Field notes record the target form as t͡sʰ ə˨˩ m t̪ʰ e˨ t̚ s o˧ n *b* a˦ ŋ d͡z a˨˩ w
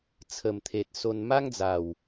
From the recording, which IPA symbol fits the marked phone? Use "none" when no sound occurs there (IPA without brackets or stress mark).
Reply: m